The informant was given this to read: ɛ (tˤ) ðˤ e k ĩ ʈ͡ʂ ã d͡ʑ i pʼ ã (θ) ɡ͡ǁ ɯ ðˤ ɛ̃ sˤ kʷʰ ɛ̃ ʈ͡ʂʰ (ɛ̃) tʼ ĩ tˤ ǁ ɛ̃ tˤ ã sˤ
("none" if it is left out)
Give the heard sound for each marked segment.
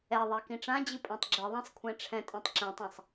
none, tˤ, ɛ̃

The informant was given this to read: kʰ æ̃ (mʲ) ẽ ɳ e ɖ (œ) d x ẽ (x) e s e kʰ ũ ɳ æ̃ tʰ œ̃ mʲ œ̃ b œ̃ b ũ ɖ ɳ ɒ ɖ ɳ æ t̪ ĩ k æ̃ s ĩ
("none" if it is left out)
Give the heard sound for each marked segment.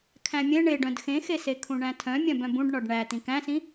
mʲ, œ̃, x

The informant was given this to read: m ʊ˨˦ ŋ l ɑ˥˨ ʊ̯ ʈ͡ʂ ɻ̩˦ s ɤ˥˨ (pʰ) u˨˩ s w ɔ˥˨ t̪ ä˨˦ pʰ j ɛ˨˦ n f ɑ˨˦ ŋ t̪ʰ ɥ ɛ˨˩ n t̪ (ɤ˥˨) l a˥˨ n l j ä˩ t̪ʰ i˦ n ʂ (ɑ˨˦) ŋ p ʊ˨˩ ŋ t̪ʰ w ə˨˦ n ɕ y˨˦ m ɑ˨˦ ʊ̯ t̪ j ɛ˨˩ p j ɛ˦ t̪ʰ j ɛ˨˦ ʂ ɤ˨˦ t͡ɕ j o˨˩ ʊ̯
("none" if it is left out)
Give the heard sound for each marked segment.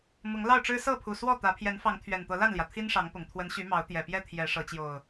pʰ, ɤ˨˦, ɑ˨˦

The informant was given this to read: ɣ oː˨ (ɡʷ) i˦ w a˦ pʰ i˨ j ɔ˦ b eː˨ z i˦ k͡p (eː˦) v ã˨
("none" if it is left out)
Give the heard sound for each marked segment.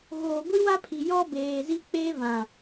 ɡʷ, eː˦

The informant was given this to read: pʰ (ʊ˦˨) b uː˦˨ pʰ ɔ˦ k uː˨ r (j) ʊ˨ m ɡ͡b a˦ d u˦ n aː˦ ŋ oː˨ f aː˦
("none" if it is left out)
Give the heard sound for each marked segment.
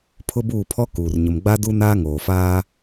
ʊ˦, ɲ

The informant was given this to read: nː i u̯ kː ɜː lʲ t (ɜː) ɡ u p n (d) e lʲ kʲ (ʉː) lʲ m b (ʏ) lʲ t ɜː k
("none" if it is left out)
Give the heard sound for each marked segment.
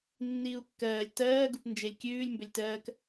ɜː, d͡ʒ, ʉː, ʏ

